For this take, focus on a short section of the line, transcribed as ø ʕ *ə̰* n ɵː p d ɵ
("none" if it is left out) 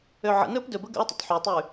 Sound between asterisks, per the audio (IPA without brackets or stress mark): ə̰